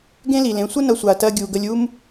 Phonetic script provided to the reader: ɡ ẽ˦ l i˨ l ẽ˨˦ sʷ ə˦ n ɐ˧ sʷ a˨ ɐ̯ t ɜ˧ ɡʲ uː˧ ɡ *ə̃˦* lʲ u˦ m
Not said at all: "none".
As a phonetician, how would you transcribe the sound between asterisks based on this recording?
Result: ə˦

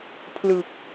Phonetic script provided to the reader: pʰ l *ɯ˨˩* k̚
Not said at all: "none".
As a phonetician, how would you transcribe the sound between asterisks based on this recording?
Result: ɯ˨˩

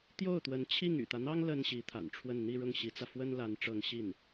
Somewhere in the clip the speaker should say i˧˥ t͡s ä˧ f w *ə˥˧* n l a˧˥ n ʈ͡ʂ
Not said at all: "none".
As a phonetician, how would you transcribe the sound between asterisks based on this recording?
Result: ə˥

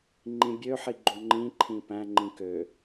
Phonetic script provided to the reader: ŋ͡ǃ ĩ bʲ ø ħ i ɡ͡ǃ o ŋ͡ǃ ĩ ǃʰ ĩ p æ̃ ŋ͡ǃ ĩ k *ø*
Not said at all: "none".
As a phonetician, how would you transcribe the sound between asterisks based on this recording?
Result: ø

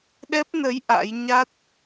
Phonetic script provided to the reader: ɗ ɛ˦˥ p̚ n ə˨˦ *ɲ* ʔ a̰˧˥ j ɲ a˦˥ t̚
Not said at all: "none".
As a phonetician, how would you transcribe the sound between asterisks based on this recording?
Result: j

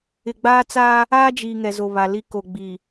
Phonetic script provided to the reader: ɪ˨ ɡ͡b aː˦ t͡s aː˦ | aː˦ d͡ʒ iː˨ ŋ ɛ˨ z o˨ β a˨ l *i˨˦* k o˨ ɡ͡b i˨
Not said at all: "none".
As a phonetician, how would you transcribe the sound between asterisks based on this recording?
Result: i˦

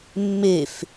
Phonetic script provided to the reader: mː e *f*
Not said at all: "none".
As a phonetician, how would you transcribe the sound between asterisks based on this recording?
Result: f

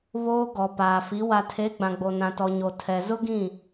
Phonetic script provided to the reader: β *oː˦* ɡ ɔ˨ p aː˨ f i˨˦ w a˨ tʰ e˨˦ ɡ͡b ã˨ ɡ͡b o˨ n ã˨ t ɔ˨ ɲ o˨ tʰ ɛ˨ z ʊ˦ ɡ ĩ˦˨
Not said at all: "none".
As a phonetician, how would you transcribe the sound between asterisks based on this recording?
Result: oː˦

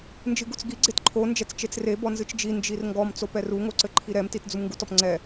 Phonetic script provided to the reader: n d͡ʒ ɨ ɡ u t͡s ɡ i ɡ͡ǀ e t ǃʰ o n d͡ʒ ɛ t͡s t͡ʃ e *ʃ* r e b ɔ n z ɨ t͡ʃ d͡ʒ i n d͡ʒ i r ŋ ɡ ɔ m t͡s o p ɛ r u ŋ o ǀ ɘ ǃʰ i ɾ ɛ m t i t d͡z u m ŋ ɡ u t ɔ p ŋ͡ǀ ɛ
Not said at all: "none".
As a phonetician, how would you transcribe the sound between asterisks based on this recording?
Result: t͡s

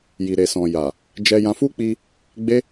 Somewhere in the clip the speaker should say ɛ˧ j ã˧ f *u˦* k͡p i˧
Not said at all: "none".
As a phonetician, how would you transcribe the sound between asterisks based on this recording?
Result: u˦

